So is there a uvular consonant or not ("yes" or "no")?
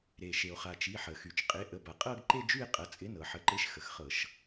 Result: yes